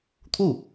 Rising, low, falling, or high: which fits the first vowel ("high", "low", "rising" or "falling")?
falling